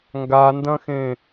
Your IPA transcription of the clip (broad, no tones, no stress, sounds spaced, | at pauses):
ŋ ɡ a n d ɐ̃ x ẽ